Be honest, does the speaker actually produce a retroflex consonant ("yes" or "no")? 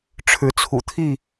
yes